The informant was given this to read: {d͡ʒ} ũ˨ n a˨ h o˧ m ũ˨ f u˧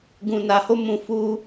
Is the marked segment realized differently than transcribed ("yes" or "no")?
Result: yes